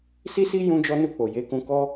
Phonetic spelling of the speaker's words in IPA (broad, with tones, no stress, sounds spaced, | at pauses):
s i˦ s i˦ j ũ˦ d͡ʒ ɔ˦ n u˦˨ k͡p o˨ j e˨˦ k ũ˧ k ɔ˦